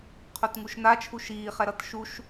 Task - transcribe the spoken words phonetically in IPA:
qʰ o t ŋ u ʃ n a t͡ʃʰ u ʃ iː χ ɛ ɾ ʌ t ʃ u ʃ

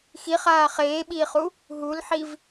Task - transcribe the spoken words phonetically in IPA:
x i χ aː χ eː ɓ iː χ u | ɦ u l ħ i v

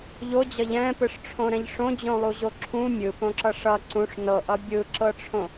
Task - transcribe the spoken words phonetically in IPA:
ʎ o d͡ʑ ʌ ʎ ɛ̃ p ɯ ʂ ʈ͡ʂʰ õ ɾ ɛ̃ ʎ ʂ õ d͡ʑ õ lˠ u ʑ o ǁʰ ũ mʲ ɯ p õ ǁ ʌ ʂ ʌ ǀ ũ ʂ n ɤ ʔ ʌ bʲ ɯ ǁ ɤ ʈ͡ʂʰ õ

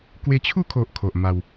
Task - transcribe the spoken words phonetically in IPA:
k w e˧ t͡ɕʰ u˥˧ kʰ o˨ ʔ kʰ o˨ ʔ m a˧ w

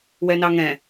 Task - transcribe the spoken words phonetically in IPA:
w ɛ n ɑ ŋ ɛ̃

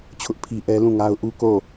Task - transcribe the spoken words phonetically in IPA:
t͡ɕʰ ʊ˦ ʔ pʰ i˦ ʔ ɛ˦ l ũ˦˨ ŋ a˦ ʊ̯ ʔ u˦ k o˦˨

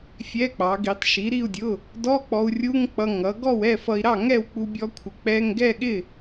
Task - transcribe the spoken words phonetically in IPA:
fʲ ɛ˧˥˧ k͡p ɑ˩˥ ɡ i˩˥ tˤ ʃ i˩˥ ɾ i˥˨ u̯ dʲ ʊ˧˥˧ | d ɔ˧˥˧ k͡p ɔ˧ u̯ rʲ u˧˥˧ ŋ k͡p ʌ˧ ŋ ʌ˩˥ ɡ ɔ˥˨ w ɛ˥˨ f ʌ˧ i̯ ɾ ɑ˥˨ ŋ ɛ˥˨ w k͡p u˧ bʲ ɔ˧ kʷʰ ɪ˩˥ k͡p ɛ˧˥˧ ŋ ɡ ɛ˥˨ ɠ ɪ˥˨

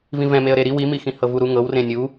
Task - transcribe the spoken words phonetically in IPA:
v ĩ v ɛ̃ m e ə̯ ɾ e ɾ i w i m i x ĩ h ɤ v u ɾ u ŋ ɤ w r ẽ nʲ u

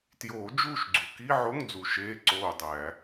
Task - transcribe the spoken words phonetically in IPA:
t j oː˨˩˦ d͡ʒ uː˦˨ ʃ ɡ͡ǀ u˩ k i˧˥˧ ʕ o˧˥˧ ŋ d͡z u˩ ʃ eː˧˥˧ ǀ oː˦˨ dˤ æ˨˩˦

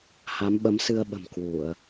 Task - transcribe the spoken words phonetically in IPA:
h a˨˦ m ɓ ə˨˦ m s ɨ˧ ə̯ ɓ ə̤˨˩ m k w u˧˩˨ ə̯

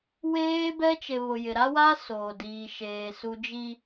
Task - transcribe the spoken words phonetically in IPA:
w eː˦ b ɛ˦ t͡ʃ e˨ β ʊ˨ j ɪ˨ ɾ a˦ w a˦ s oː˨ d iː˨ ʃ eː˨ s u˨ d͡ʒ i˨

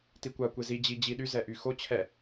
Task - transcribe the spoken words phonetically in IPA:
t i kʷ a kʷ e z i d͡ʑ i d͡ʑ i ɗ y z ɛ ʔ y x o t͡ɕʰ ɛ

